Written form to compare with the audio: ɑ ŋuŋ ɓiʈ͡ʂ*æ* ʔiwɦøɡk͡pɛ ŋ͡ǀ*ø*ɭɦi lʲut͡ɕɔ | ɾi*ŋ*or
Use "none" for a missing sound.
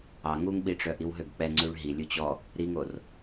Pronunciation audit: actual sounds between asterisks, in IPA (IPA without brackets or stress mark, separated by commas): œ, ʉ, ŋ